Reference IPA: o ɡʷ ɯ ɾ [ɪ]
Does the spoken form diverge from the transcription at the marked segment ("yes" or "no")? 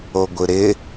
no